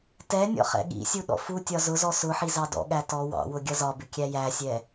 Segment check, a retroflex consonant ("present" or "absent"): absent